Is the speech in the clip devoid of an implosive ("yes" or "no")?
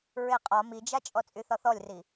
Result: yes